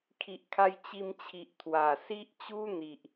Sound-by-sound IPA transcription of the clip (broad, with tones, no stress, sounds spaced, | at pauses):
kʰ i˨ ʔ kʰ a˧ j t͡ɕ i˧ m t͡ɕʰ i˨ ʔ t̪ʰ w a˨˩ s i˦ ʔ t͡ɕ u˦ n̪ i˨ ʔ